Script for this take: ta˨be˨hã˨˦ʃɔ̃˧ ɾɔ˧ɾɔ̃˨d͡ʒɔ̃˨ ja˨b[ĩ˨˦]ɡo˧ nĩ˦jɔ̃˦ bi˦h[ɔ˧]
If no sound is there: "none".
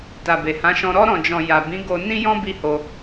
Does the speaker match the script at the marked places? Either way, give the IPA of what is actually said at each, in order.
ĩ˨˦, o˧

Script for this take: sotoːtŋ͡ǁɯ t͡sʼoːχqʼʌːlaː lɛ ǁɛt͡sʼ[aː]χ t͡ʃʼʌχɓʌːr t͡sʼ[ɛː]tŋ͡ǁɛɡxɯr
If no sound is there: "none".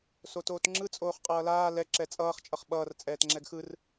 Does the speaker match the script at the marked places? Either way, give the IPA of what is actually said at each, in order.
ʌː, ɛː

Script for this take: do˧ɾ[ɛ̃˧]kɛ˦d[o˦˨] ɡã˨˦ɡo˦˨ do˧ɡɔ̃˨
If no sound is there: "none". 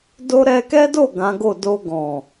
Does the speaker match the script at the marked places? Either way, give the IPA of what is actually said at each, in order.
ɛ˧, o˦˨

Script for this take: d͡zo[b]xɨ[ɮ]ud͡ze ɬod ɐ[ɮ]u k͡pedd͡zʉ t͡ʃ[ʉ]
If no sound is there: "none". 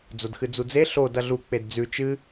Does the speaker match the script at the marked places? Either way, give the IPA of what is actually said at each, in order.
d, d͡z, ɮ, ɨ

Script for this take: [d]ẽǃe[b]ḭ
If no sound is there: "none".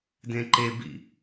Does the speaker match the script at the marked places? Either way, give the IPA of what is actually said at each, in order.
d, b

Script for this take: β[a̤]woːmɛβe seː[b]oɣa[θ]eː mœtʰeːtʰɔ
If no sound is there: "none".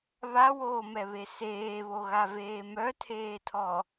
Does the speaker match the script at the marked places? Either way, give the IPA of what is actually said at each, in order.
a, β, v

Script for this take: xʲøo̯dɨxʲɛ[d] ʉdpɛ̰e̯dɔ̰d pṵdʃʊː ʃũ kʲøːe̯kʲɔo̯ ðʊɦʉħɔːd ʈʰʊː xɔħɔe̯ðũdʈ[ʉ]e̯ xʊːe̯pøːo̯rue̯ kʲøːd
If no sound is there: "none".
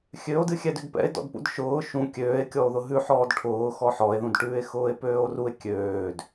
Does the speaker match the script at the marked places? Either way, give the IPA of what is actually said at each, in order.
d, ʉː

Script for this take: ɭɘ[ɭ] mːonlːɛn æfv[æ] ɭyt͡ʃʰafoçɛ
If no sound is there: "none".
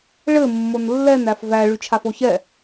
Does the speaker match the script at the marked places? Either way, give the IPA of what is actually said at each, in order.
none, æ

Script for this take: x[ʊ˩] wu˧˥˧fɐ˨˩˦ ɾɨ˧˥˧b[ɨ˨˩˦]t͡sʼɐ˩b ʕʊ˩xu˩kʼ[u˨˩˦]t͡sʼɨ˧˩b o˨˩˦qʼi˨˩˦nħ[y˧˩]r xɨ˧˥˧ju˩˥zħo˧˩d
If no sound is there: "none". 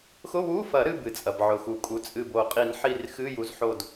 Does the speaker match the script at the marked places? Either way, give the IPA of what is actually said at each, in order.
ʊ˧˥˧, ɨ˩, u˩˥, i˧˩

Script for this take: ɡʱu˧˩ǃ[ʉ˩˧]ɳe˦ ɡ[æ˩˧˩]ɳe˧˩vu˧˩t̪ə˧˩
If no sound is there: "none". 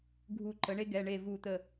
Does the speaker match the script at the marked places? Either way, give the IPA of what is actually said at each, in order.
ə˩˧, ɛ˩˧˩

